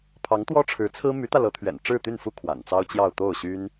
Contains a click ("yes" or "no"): no